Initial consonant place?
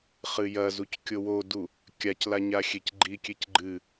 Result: uvular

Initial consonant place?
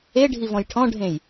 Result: retroflex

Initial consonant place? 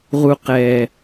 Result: uvular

